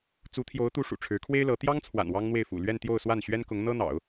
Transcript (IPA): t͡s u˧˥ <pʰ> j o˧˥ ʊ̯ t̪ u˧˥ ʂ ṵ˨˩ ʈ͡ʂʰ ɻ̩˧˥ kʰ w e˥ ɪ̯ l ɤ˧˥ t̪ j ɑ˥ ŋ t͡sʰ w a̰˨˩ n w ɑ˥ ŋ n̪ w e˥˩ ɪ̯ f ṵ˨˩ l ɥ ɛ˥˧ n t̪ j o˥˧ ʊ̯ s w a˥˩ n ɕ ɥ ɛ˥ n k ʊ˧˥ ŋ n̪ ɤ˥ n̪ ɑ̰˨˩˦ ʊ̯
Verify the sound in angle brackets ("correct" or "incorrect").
incorrect